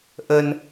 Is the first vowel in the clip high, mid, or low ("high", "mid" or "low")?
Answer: mid